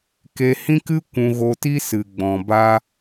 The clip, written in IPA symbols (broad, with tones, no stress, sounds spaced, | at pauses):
k e˧ h ĩ˦ k ɨ˦ kʷ ũ˧ ɣ o˧ t i˦ s ɨ˨ ɡ͡b ɔ̃˨ b a˧